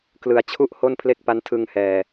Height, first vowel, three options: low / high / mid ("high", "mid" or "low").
high